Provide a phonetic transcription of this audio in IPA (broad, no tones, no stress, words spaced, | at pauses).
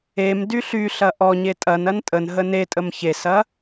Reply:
em dyɬyɬɐ ʔɔɲe tʼɐnɐn tʼən ɦənetʼəm çesɐ